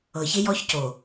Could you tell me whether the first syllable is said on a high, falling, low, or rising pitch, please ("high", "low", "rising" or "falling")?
low